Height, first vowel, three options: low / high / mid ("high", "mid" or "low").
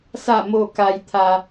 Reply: low